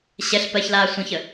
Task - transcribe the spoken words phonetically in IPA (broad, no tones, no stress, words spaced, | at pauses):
ɕɛɬ pɜçlaː sʷə̃çə